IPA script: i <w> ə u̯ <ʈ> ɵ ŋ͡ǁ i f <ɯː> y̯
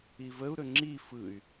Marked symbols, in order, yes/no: no, no, no

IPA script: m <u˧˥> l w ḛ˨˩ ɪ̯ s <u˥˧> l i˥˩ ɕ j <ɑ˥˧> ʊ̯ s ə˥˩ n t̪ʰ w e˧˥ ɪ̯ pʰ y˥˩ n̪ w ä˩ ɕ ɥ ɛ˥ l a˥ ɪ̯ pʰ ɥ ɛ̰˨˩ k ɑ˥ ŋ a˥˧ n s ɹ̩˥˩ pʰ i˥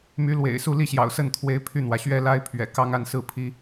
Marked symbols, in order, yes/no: no, yes, no

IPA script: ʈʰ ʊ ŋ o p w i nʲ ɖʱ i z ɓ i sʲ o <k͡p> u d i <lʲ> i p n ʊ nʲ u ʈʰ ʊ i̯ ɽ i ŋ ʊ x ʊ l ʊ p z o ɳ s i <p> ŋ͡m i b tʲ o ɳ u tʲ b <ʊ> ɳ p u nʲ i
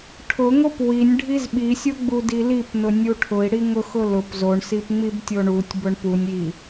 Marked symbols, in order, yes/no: no, no, yes, yes

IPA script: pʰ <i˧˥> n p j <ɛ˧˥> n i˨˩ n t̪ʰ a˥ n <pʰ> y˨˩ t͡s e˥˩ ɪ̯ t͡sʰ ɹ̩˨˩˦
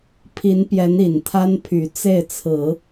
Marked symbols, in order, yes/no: yes, yes, yes

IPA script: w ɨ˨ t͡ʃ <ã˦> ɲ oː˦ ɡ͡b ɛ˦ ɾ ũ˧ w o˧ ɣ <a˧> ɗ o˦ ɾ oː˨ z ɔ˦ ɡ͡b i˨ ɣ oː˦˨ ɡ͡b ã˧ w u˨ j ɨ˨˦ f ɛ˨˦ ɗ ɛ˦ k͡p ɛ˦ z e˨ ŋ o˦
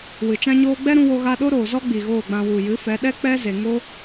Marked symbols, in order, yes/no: yes, yes

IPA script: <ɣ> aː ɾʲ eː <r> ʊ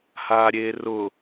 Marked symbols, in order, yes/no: no, yes

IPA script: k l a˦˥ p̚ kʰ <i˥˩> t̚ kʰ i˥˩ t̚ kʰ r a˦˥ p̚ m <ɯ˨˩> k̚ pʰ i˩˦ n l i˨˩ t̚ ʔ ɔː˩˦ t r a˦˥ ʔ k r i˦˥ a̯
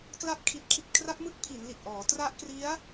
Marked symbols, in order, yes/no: no, no

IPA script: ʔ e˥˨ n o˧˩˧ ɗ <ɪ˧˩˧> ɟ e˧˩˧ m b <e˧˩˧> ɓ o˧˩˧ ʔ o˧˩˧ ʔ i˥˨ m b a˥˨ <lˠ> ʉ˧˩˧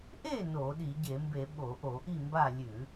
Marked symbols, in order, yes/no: no, yes, no

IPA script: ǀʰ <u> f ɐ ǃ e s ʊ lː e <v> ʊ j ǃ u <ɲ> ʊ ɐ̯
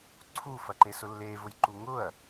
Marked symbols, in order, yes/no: yes, yes, no

